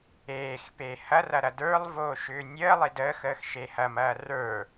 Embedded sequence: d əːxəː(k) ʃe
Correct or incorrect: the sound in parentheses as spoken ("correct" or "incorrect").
incorrect